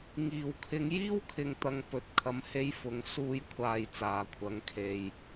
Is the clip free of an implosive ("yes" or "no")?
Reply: yes